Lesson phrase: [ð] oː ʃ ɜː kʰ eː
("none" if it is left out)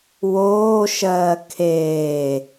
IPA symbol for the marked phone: w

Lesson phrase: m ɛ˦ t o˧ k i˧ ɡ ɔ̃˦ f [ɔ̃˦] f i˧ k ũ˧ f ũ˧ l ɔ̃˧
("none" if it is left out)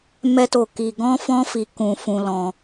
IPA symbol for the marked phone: ɔ̃˦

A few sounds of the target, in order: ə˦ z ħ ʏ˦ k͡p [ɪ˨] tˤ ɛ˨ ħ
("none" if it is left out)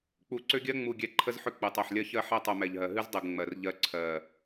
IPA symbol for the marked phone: ɨ˨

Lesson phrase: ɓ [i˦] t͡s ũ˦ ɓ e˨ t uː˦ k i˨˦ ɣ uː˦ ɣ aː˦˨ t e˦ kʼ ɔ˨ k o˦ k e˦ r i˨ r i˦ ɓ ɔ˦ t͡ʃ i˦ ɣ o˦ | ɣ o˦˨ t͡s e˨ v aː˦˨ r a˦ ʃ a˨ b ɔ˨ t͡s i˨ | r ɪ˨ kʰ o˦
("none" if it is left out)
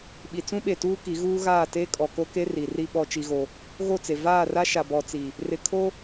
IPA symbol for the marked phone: i˨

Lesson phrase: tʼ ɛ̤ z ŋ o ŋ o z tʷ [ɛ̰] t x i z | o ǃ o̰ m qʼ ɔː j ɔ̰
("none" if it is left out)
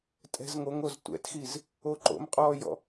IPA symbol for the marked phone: ɛ̰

